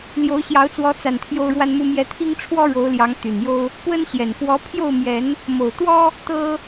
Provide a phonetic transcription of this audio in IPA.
ljo˨˦ʊ̯ɕjɑ˨˦ʊ̯t͡swɔ˨˦t͡sa˨˩n t̪ʰjo˦ʊ̯ɻwa˦nmu˦mjɛ˦ t̪ʰi˦ŋ ʈ͡ʂʰwɔ˦ɻo˨˦ʊ̯ljɑ˨˦ŋ t̪y˨˩njo˦ʊ̯ | pwə˦n ɕjɛ˨˩n fwɔ˨˦ pʰjo˥˨ʊ̯mjɛ˨˦n | mo˨˩ʊ̯t̪wɔ˦ | t̪ɤ˦

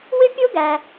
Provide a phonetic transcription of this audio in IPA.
wɪ˥pʲʊ˥ɡæ˩

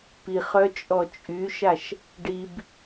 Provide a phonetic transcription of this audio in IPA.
piχœ t͡ʃʼɔt͡ʃʼyʃaʃ | ɖib

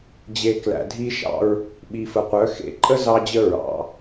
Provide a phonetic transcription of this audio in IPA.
d͡ʑe˨ klæ̰˨dʱi˦ʃɑ̰˦ɹ | ɓi˨fə˨qʷœ˨˦ xḛ˨ ǃʼə˦ zɑ˦d͡ʑə˦ ɹɑ̰˨˦

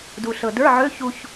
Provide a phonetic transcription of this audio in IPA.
du˧ɬɤ˧ də˞˧˥˧ʕø˧˥˧ çu˧ç

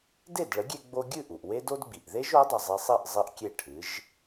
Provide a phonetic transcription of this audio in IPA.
de˥˩dɭə˩˥ɡʲe˧ ɡ͡bo˧ɡʲɨ˥˩ʔu˩ʔ we˥do˥d ɡ͡bi˩ʔðe˥ʒ o˩˥dˤɨ˩zˤi˧sˤi˥˩ʔ zˤɨ˥ʔkʲe˥˩ʈʰɨ˩˥ʒ

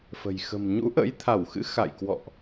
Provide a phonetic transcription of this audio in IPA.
fə̤˨˩j xə̤˨˩m ɲṵ˧˥ʔə̰˧˥jt̪ʰa˧˩wxɨ̰˧˥ xa̰˧˨jkwɔ̰˧˨ʔ

